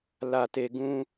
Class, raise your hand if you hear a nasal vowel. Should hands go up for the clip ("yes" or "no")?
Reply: yes